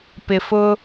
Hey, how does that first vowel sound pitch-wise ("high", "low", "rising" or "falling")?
low